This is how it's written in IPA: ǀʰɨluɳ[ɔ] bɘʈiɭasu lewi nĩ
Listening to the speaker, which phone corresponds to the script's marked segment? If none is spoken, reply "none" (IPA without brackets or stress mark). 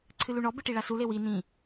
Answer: ɔ